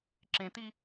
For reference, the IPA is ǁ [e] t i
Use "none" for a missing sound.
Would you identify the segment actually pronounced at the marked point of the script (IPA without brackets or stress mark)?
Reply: ẽ